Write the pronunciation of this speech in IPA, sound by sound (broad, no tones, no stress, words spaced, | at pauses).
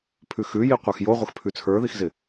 pʰʉxʉji qʷə˞xjoʁʷəx pʰʉt͡sʰə˞ðixzɪ